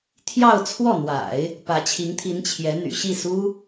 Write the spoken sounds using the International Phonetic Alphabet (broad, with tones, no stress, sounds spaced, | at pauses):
t̪ʰ j ɑ˥˧ ʊ̯ t͡sʰ w ɔ˥˩ n̪ w a̰˨˩˦ ɪ̯ | p ä˧˥ t͡ɕʰ i˧˥ ŋ t̪ʰ i˧˥ n t͡ɕʰ j ɛ˧˥ n̪ y̰˨˩ ɕ i˥˩ s u˥